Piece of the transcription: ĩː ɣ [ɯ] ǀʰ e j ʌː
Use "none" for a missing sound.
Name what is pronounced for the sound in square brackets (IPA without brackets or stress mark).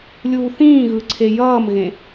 ɯ